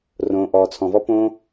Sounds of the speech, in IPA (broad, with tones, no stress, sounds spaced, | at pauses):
r õː˩ ʔ ɔː˩ t͡sʰ ɔ̃˩ v ɔ˧ p õː˧